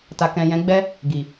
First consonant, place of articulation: alveolar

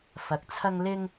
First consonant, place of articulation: labial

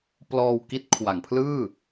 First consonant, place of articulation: labial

